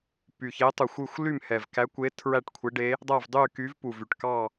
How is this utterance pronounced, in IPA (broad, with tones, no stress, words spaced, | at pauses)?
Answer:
py˨˩çe˧˥tˤu˨˩xʷy˥˧xʷ ly˥˧mhɛ˨˩vkæ˧˥kʷe˧˥ tʰɹæ˥˧ʈkʷʰe˧˥ɖe˧˥ | dˤæ˥˧vdˤy˥˧ky˧˥v pu˨˩vy˨˩ʈkɑ˥˧